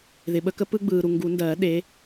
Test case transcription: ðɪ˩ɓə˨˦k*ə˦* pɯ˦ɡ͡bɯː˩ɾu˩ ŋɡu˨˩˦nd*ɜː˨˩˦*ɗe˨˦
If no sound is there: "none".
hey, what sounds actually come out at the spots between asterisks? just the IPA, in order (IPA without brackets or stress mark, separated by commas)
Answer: ə˨˦, ɜː˨˩˦